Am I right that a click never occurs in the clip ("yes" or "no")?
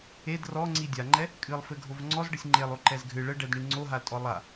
no